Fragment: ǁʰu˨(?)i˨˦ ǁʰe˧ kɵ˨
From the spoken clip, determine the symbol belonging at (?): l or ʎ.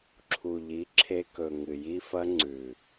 ʎ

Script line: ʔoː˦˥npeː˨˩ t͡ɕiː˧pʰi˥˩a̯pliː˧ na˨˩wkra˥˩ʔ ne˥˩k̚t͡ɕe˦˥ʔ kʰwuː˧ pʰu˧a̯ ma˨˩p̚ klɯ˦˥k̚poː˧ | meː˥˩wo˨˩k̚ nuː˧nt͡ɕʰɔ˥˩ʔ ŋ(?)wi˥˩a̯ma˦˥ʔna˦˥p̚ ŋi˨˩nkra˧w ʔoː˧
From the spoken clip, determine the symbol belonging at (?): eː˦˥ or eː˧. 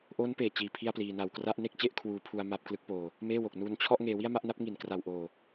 eː˧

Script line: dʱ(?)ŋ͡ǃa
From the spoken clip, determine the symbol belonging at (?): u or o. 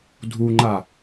u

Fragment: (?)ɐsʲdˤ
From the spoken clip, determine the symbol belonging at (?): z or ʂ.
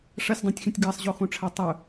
ʂ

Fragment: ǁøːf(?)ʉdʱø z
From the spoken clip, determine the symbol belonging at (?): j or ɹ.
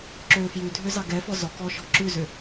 j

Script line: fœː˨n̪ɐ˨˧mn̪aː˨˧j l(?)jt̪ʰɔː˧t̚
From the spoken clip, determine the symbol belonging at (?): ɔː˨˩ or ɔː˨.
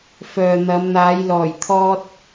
ɔː˨˩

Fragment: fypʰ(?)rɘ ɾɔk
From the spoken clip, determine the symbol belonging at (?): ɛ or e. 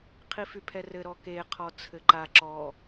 ɛ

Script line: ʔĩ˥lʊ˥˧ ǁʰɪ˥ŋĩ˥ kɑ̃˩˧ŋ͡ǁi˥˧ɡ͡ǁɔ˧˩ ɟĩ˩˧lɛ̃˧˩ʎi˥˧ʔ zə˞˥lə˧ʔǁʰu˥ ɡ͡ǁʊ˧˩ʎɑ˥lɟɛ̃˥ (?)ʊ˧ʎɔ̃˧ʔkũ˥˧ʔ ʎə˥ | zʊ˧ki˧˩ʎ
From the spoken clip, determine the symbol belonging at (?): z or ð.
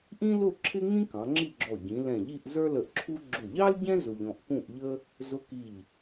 z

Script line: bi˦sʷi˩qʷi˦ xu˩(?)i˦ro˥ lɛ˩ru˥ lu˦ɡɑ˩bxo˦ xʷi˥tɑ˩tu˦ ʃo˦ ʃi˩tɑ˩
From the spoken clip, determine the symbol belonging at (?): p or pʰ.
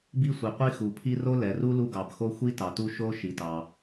pʰ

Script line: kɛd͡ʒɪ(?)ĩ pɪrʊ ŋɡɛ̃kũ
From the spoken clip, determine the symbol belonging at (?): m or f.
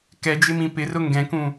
m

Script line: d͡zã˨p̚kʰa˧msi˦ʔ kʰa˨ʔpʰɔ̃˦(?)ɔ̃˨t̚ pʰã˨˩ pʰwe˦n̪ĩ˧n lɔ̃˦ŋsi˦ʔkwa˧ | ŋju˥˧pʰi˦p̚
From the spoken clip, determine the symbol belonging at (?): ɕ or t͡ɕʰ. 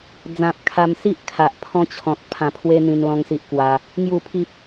t͡ɕʰ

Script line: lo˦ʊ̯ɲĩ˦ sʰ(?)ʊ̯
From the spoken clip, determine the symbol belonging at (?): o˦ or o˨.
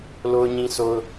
o˦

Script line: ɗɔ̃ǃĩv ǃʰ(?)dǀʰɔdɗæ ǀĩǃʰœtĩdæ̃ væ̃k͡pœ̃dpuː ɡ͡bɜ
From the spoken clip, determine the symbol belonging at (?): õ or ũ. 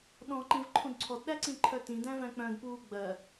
ũ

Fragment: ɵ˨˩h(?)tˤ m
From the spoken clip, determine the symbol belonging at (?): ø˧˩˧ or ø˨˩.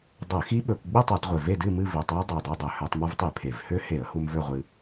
ø˧˩˧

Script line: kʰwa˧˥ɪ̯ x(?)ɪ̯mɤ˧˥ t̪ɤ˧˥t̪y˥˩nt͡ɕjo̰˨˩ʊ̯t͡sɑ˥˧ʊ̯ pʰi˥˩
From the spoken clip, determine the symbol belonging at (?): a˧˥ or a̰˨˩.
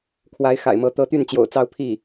a̰˨˩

